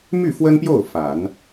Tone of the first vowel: falling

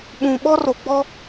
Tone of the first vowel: low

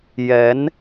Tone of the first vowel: rising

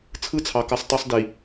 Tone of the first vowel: falling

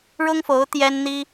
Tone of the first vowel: high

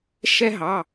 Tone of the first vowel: high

